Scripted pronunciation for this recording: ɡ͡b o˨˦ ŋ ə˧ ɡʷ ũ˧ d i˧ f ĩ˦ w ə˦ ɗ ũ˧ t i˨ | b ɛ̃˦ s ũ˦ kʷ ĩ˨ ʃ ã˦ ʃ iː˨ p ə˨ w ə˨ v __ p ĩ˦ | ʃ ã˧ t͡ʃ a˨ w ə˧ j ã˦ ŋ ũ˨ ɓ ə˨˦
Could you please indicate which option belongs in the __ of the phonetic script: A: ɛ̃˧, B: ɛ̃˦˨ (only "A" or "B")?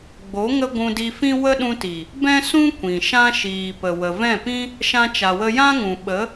B